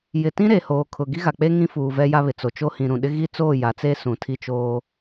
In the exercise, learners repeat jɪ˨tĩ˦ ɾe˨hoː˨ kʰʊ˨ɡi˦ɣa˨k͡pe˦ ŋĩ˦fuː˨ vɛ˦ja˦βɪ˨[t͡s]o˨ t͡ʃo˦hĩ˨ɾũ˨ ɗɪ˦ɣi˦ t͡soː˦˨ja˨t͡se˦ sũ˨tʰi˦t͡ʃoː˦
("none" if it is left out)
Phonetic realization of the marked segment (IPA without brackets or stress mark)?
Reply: t͡s